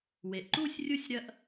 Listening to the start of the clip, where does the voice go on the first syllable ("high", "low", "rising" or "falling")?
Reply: low